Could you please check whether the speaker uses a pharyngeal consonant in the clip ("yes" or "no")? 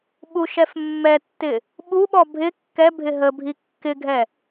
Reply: no